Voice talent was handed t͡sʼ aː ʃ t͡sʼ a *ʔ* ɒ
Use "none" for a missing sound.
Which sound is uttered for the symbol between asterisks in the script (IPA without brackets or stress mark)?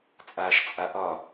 ʔ